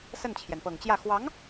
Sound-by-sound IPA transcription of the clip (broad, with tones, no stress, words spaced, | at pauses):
sə˥˩nt͡ɕʰjɛ˩npɤ˨˩ŋt͡ɕjä˥˩ xwɑ˧˥ŋ